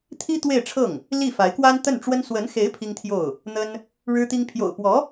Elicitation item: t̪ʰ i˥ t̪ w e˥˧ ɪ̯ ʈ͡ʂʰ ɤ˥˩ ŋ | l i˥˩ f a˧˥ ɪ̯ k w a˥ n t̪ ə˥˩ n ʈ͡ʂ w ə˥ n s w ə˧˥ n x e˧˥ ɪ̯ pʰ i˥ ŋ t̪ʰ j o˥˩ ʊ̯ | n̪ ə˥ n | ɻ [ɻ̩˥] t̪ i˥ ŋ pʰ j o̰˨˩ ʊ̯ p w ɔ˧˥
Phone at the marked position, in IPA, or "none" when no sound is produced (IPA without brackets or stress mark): ɻ̩˥